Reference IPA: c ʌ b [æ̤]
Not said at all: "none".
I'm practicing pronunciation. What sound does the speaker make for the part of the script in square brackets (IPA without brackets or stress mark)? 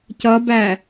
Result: æ